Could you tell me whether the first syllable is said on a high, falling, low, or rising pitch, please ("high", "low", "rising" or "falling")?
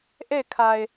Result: falling